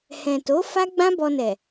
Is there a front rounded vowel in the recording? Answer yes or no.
no